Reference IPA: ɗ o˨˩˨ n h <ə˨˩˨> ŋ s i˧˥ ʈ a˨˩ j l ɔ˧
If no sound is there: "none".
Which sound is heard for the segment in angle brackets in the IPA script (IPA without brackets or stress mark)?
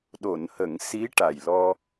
ə˨˩˨